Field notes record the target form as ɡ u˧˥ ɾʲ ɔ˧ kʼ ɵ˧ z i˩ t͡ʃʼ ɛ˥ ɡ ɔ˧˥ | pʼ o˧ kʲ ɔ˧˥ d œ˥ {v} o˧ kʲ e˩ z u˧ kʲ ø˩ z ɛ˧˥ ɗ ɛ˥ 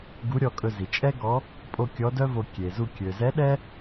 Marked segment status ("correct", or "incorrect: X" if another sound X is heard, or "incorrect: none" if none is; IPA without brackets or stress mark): correct